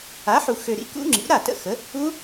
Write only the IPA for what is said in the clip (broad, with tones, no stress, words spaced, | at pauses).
a˩˥ħu˨ xø˨ɾḭ˩˥ kṵ˦˥ŋ͡ǁḭ˩˥ ɾa˥˩tə̰˥˩xə˩˥ | u˦˥